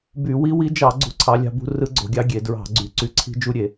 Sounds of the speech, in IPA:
b y˧˩˧ w i˦˥ w i˦˥ d͡ʒ ɑ˧˩˧ ɡ͡ǀ ṳ˦˥ ǀʰ ɑ˦˥ lʲ ɑ̤˦˥ b ṳ˦˥ r ɯ˦˥ ɡ͡ǀ o̤˧˩˧ ɡʲ ɑ˦˥ ɡʲ e˧˩˧ d ɹ ɑ̤˧˩˧ ɡ͡ǀ y˧˩˧ ǀ y˦˥ ǀʰ i̤˦˥ d͡ʒ u˦˥ ɾʲ e˧˩˧

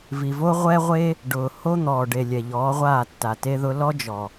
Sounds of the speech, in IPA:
v i˨ v o˦ ʁʷ ɛ˦ ʁʷ e˦ | ɖ ʊː˨ h o˦ n̪ ɔː˨ ɖ e˨ lʲ ɛ˨ ʎ ɔː˨˦ ʁʷ aː˦˨ tː a˨ t e˦ ð ʊ˦ l ɔ˦ d͡ʒ ɔ˨

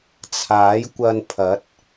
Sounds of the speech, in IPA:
t͡sʰ aː˨˥ j kʷ ɐ˧ n pʰ ɐ˨˥ t̚

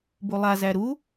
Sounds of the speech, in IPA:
b u lˠ a z æ ɾ u

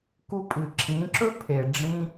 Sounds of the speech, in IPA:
k u˧ pʼ ɨ˨ ǁʰ ĩ˨˦ ǁ ɵ˦ pʰ e˨ ɖ͡ʐ ĩ˧

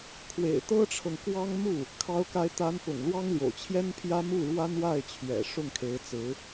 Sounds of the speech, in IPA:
kʰ w ḛ˨˩ ɪ̯ t̪ ɤ˥ ʈ͡ʂʰ ɤ˨ ŋ k w ɑ˥ ŋ m u˥˩ | kʰ ɑ˧˥ ʊ̯ k a˧˥ ɪ̯ t̪ a˧˥ n p ʊ̰˨˩ ŋ l w ɑ˥ ŋ l j o̰˨˩ ʊ̯ t͡ɕʰ j ɛ˥ n pʰ j ä˥ m u˥˩ ɻ w a˥ n w a˥˩ ɪ̯ t͡ɕʰ ɥ ɛ̰˨˩ ʂ ʊ˥˩ ŋ kʰ e˧˥ ɪ̯ t͡s ɹ̩˧˥

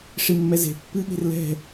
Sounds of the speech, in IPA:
ʂ i mː ɛ z e̤ pː ɨ ɠ e̤ r l ɛ̤

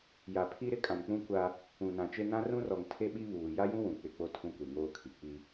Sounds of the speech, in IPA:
j a˨ pʰ i˦ ɾ ɪ˦ kʼ ã˨ n k͡p ũ˦ kʷ a˦ | ũ˨ n ã˨ t͡ʃ e˦ n ã˦ r ũ˦ r ɔ˨ ŋ tʰ e˦ ɓ i˦ β uː˨ j a˦ j ũ˦ w ũ˨ k͡p ɪ˦˨ k͡p o˦ tʰ ũ˦ kʷ e˨ ŋ oː˦ kʰ i˨ k͡p i˦

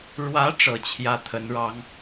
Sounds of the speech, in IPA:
ɻ w ä˧˥ ʈ͡ʂ ɤ˨˩ t͡ɕʰ j ä˥˩ t̪ʰ ə˧˥ n ɻ ɑ˧˥ ŋ

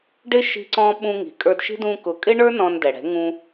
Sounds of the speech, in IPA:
ɖ ɪ˦ ʃ i̤˦ ǀ ɔ̃˦ ɓ ũ˧ ŋ i̤˨ kʼ ə˞˧ d ʃ i̤˦ d ũ˧ k ʊ˨˦ kʼ ɪ˦ ɳ ə˞˦ n ɔ̃˧ n d ɛ˨ ɽ ɛ̤˨˦ ŋ ũ˧

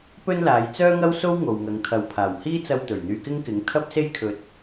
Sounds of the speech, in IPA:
p ɵ˥ n l aː˨˧ j t͡s œː˥ ŋ ɐ˥ w s o˥ w ŋ o˨ w ŋ ɐ˨˧ ŋ t̪ʰ ɐ˨ w pʰ aː˨˩ w h iː˥ t͡s ɐ˧ w t̪ ɵ˨˩ ɥ n̪ yː˧ k ɪ˥ ŋ k ɪ˨˥ ŋ t̪ʰ ɐ˥ p̚ s e˥ j kʰ ɵ˨ t̚

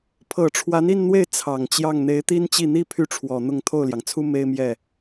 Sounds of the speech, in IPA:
pʰ ɤ˨˩ ʈ͡ʂʰ w a˧˥ n i˥˧ n n̪ w e˥˩ ɪ̯ t͡sʰ ɑ˨˩ ŋ t͡ɕ j ɑ˥˩ ŋ n̪ e˧˥ ɪ̯ t̪ i˥ n t͡ɕ i˥˩ n̪ i˥ pʰ y˥ ʈ͡ʂʰ w ɔ˨˩ n̪ ʊ˥˧ ŋ t̪ʰ o˥˩ ʊ̯ l j ɑ˩ ŋ t͡sʰ u˥ m e˥ ɪ̯ m j ɛ˥˩

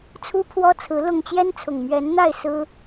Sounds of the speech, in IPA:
t͡sʰ u˦ pʰ w ɔ˦ t͡sʰ ɹ̩˨˦ l ʊ˥˨ ŋ t͡ɕ j ɛ˦ n t͡sʰ ʊ˨˩ ŋ m ɥ ɛ˨˦ n n̪ a˥˨ ɪ̯ s ɹ̩˦

